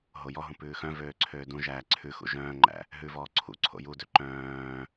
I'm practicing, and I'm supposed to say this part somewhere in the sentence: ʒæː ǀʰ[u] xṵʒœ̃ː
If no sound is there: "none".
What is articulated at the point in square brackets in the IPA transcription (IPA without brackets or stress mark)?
ʉ